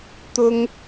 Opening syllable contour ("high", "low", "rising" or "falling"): high